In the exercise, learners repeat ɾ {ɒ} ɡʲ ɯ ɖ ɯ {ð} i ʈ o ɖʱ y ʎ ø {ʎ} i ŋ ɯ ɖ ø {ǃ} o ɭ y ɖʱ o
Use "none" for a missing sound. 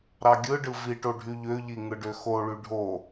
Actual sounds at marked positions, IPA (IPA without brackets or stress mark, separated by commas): ɑ, v, ʎ, x